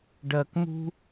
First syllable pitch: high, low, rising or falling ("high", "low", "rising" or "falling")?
high